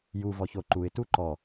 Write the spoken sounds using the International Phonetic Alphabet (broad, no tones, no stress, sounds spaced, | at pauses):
j u v ɔ ç o ǃ u ɪ̯ t u ǃ ɔ